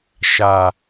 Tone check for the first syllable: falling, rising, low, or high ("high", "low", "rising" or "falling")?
low